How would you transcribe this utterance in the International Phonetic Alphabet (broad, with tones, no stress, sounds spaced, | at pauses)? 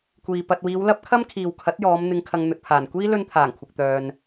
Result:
kʷ iː˨ p ɐ˨ t̚ w iː˨˧ w l ɐ˥ p̚ kʰ ɐ˥ m kʰ iː˨ w kʰ ɐ˨˥ t̚ j ɔː˨˧ m n̪ ɪ˧ ŋ kʰ ɐ˧ ŋ n̪ ɵ˨ t̚ pʰ aː˨˩ n kʷ iː˥ l ɵ˧ n t̪ʰ aː˨˩ ŋ kʷʰ ɪ˨ k̚ t̪ œː˨ n